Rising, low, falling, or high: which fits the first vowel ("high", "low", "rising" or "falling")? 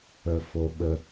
high